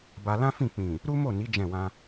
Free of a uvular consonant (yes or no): yes